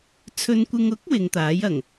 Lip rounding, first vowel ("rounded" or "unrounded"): rounded